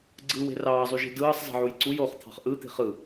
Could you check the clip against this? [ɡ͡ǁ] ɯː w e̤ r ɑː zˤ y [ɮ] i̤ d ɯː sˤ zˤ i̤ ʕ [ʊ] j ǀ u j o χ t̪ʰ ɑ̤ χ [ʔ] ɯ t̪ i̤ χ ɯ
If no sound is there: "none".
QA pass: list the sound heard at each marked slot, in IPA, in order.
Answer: ɡ͡ǀ, ʒ, u, ʔ

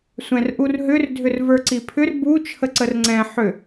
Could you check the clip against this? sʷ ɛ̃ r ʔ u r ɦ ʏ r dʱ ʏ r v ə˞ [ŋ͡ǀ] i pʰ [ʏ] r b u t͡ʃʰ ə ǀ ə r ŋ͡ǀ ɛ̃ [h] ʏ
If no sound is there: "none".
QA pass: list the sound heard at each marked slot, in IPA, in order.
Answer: ǀ, ʏ, ħ

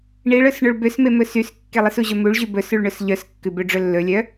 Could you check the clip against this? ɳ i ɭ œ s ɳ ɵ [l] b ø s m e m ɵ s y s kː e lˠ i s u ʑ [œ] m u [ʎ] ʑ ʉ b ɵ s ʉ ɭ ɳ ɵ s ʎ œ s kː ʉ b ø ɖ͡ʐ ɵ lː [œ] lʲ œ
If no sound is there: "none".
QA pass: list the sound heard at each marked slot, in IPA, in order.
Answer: ɭ, ɵ, ɭ, ɵ

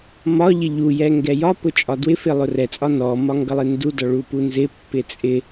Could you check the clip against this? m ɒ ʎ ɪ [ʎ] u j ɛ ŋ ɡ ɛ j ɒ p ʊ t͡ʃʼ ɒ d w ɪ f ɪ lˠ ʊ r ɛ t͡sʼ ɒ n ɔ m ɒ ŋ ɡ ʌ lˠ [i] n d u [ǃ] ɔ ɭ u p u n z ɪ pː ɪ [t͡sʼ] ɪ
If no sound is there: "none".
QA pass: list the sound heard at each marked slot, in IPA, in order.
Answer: ʎ, ɪ, d, t͡sʼ

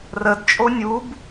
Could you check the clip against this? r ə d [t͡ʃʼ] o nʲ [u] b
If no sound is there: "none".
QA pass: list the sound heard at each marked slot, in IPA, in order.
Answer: t͡ʃʼ, u

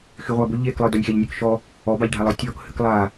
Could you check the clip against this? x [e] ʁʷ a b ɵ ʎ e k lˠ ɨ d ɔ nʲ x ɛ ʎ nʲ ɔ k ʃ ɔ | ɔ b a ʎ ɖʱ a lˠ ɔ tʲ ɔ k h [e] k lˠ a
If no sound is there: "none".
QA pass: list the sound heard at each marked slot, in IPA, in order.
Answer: y, ɨ

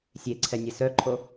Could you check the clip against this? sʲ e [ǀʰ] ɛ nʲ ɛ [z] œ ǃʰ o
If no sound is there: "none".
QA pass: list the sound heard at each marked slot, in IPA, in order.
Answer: ǀʰ, s

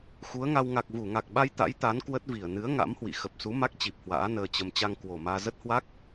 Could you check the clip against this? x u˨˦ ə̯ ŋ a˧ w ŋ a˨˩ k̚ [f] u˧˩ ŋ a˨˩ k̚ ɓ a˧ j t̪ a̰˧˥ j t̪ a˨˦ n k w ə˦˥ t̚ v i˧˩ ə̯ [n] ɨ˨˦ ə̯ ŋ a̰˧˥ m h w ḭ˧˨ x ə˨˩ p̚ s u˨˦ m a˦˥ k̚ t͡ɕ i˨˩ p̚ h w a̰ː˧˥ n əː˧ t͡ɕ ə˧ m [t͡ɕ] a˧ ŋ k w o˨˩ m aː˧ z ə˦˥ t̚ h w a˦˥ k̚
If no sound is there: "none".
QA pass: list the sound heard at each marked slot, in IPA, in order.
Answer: v, n, t͡ɕ

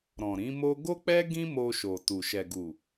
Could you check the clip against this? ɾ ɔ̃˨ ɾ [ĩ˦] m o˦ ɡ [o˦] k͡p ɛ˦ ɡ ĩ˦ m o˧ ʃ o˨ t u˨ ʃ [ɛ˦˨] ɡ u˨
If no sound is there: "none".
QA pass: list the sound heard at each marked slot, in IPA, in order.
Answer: ĩ˨˦, o˦, ɛ˨

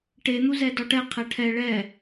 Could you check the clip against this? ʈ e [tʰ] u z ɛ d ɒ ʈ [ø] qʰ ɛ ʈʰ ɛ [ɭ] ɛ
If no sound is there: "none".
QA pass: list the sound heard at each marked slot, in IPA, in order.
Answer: n̪, ɛ, ɭ

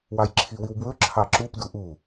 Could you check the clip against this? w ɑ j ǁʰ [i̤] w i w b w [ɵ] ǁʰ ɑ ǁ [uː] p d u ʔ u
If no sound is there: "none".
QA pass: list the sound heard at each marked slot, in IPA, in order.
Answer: i, ɵ, u

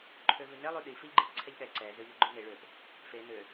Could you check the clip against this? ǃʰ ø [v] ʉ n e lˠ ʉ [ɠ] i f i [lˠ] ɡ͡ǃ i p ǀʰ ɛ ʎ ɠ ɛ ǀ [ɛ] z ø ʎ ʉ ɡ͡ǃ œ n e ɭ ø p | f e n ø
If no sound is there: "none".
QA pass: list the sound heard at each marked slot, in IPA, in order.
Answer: v, ɗ, ʎ, ɛ

